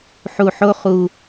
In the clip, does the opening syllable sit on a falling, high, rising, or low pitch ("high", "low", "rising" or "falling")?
low